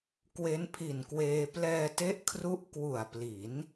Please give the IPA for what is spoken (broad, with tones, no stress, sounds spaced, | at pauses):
k w e˦˥ n pʰ i˨˩ n k w eː˧ p l ɛː˧ t e˦˥ ʔ kʰ r u˦˥ ʔ k w u˨˩ a̯ p l i˩˦ n